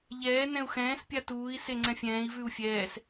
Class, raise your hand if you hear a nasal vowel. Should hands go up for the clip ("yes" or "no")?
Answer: yes